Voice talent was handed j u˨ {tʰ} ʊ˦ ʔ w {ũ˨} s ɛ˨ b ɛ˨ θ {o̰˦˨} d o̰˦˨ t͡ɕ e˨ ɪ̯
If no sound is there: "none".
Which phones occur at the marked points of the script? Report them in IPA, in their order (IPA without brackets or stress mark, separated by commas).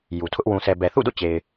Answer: tʰ, ũ˨, ṵ˦˨